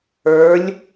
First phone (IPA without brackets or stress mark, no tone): ə˞